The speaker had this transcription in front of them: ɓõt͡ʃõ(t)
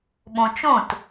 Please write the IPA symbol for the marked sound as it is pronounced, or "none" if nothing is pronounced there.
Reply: t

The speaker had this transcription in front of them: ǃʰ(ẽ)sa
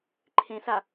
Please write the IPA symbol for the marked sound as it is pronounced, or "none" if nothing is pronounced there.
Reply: ẽ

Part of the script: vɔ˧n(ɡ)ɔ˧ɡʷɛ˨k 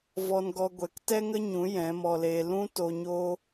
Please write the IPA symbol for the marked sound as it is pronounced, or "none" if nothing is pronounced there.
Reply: ɡ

